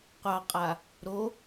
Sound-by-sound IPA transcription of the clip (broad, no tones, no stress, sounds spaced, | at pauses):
qʷ ɑ qʼ a | ɾ o